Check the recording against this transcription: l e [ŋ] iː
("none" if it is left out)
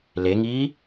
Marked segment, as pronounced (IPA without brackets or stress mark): ŋ